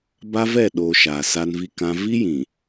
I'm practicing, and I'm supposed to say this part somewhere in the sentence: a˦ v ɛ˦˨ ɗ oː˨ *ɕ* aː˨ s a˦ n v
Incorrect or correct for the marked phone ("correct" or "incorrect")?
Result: incorrect